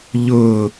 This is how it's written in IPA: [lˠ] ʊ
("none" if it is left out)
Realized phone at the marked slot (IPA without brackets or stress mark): ʎ